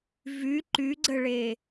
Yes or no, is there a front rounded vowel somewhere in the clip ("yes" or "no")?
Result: yes